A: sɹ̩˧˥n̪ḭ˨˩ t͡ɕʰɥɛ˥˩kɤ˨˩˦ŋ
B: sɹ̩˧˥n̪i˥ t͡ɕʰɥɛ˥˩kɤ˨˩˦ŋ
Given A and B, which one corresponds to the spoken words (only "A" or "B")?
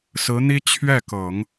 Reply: B